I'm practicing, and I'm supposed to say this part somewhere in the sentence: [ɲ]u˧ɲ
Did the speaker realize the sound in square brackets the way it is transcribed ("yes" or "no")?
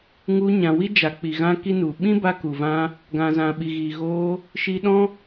no